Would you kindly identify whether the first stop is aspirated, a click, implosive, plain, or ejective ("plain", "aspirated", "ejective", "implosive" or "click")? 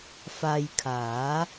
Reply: aspirated